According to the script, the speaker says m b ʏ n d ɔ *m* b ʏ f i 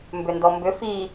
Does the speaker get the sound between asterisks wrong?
no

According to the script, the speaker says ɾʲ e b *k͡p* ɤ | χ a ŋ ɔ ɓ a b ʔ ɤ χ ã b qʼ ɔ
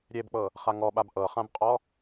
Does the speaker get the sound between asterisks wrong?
no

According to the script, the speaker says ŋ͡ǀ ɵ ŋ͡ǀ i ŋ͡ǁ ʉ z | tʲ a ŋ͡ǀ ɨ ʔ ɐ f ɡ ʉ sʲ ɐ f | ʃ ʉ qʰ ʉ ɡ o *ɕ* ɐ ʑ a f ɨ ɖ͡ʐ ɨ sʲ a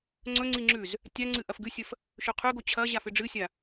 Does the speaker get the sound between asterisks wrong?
yes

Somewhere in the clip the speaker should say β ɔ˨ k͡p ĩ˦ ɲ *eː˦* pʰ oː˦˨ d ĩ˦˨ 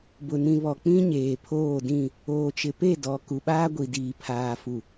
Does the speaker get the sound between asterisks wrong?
yes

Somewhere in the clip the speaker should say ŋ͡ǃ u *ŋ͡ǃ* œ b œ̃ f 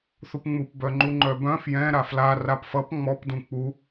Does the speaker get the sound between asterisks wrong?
no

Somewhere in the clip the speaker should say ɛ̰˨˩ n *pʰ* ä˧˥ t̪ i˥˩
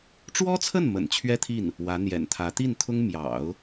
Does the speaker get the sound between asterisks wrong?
yes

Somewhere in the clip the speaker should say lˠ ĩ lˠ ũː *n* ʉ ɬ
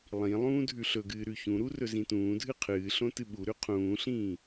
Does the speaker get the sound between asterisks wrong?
yes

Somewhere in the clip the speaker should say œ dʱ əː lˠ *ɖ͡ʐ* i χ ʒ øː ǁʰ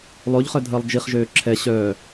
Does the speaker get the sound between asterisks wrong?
yes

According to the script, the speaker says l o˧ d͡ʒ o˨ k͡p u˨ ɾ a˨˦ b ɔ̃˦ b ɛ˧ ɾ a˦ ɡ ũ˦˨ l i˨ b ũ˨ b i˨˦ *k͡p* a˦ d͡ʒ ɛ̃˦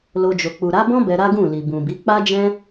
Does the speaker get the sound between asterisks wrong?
no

